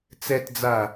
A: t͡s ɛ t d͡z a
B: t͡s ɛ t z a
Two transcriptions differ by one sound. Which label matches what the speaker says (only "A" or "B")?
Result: A